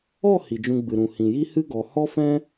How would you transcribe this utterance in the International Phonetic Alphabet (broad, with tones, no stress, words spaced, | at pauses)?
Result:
ɔ˦˨ hi˨d͡ʒũ˧ɡ͡bɨ˨ɾũ˨ hĩ˨ji˦hɨ˦ ɡɔ˨ hɔ˦fɛ̃˦